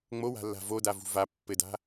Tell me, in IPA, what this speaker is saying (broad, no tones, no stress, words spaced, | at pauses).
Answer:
ŋ͡mowa̤lːa̤ vodavṳ va pːɘda̤